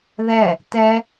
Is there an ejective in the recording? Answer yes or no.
no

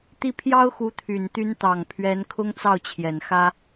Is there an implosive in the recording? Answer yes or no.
no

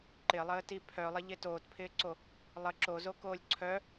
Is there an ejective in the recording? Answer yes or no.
no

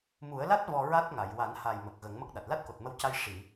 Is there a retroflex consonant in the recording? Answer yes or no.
yes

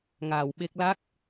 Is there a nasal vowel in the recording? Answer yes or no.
no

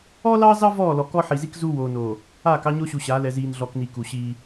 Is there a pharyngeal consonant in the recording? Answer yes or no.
yes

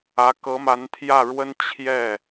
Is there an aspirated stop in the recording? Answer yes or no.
yes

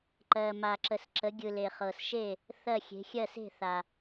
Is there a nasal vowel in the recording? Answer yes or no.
no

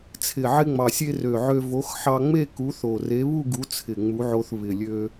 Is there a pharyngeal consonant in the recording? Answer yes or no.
yes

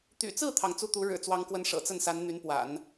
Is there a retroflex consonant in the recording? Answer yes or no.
yes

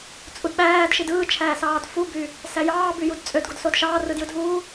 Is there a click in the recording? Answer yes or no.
no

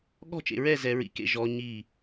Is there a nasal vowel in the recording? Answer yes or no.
no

